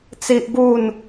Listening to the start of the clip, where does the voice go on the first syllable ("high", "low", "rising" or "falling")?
high